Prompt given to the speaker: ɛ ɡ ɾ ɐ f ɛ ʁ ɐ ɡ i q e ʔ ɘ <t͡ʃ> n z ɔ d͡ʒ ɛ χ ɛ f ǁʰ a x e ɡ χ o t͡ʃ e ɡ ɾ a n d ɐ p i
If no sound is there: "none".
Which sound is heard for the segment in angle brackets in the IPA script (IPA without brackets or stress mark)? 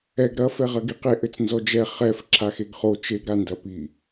t͡s